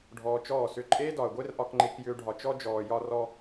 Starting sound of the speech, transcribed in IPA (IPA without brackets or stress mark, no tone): ɖʱ